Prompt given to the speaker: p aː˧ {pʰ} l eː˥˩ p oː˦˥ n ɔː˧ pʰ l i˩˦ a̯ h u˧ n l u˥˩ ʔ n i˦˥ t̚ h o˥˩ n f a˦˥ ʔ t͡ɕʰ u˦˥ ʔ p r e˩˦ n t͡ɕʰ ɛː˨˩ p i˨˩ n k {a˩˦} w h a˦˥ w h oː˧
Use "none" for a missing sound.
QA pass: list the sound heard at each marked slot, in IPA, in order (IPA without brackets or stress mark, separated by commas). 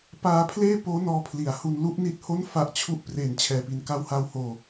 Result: pʰ, a˦˥